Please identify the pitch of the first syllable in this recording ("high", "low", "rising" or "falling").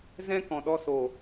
high